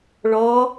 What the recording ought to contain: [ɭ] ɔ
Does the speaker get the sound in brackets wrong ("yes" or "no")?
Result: no